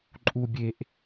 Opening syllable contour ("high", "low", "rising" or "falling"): low